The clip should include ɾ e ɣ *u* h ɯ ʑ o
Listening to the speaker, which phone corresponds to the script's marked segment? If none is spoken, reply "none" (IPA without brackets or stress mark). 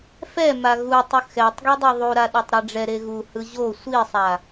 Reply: u